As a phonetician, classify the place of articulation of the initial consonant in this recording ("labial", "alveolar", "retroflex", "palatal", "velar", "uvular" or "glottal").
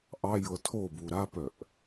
glottal